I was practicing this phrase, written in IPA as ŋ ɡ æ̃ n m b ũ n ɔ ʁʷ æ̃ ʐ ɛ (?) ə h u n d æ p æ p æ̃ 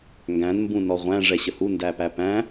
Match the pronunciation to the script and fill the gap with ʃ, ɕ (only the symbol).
ɕ